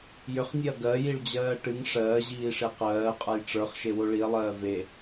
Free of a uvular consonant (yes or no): no